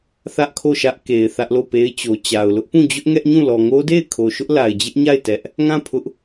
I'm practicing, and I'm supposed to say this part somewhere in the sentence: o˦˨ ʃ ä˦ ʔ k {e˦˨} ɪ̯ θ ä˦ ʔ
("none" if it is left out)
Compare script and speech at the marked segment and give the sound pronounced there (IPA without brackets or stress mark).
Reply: e˨